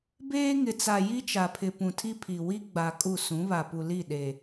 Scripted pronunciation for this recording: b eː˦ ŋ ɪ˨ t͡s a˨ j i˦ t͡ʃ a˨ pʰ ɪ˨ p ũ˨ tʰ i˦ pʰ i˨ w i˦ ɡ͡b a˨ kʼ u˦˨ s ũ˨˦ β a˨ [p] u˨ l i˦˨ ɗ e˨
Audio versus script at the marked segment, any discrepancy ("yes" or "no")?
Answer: no